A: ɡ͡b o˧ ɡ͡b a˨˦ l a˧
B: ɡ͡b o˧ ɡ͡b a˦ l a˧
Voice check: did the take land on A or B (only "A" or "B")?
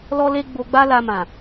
B